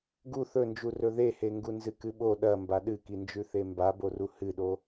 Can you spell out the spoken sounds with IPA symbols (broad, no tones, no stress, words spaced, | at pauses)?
ɡu θɵnd͡ʒu rɵðeheŋɡu nzɨkɨɓo ɗɐ mbaɗɨkind͡ʒʉ θembaboru hɨɗo